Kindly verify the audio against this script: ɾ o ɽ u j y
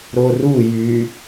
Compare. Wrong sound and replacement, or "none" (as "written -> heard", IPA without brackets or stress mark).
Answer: ɽ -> r